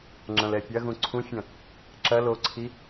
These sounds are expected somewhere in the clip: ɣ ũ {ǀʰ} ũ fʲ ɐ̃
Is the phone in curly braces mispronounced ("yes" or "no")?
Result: no